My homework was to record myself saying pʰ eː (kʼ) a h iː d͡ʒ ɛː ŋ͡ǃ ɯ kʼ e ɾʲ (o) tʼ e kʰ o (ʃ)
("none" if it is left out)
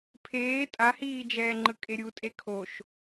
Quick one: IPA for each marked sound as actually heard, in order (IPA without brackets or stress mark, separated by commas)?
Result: tʼ, u, ʃ